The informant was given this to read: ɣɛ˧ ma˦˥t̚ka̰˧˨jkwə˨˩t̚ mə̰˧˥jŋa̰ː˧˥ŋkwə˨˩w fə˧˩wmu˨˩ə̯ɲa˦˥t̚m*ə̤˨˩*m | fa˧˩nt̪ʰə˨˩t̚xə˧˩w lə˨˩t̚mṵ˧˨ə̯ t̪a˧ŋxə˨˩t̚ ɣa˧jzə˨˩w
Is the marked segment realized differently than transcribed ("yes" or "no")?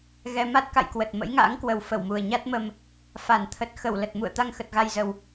yes